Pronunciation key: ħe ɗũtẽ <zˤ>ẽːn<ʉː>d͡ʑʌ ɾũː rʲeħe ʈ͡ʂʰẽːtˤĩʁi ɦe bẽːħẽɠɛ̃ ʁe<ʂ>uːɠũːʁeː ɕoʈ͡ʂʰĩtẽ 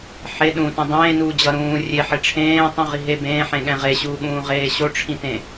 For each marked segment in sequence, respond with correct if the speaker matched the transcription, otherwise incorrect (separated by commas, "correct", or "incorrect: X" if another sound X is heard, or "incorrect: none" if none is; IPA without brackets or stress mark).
incorrect: dˤ, incorrect: uː, incorrect: ɕ